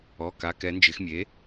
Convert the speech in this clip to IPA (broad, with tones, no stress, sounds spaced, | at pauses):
ɔ˩˧˩ k a˩˧ k ɛ˩˧ n d͡ʒ ɪ˩˧ x mʲ e˩˥